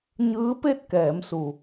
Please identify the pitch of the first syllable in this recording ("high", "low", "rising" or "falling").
rising